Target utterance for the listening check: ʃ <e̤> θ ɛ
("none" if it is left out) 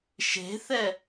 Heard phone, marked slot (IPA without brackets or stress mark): e̤